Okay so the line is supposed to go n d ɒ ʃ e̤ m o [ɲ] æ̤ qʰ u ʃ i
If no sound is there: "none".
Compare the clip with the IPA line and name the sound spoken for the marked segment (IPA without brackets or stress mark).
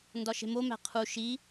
m